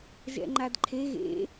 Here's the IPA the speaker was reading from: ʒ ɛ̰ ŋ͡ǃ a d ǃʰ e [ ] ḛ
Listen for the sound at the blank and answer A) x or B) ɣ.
B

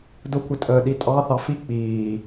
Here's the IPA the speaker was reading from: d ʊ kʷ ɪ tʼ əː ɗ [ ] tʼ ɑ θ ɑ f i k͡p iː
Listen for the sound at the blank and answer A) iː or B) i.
B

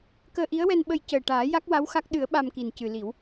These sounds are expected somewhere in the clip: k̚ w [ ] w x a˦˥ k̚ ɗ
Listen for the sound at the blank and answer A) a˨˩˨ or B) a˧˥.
B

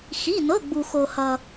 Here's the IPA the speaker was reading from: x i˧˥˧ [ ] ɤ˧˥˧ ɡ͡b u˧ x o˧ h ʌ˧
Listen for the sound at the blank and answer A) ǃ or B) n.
B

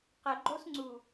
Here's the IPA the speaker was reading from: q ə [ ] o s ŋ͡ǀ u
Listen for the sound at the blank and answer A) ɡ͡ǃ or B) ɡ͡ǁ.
A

